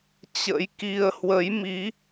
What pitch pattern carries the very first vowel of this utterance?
rising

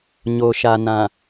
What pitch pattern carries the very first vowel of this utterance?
low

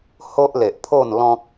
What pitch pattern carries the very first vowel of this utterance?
high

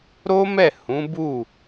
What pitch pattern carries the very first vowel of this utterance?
high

